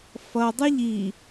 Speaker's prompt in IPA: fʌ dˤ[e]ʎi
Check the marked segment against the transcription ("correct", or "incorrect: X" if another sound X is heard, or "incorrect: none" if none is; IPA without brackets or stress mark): incorrect: ɨ